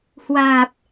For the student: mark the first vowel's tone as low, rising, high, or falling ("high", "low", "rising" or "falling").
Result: low